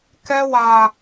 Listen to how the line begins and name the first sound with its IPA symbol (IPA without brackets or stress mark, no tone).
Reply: k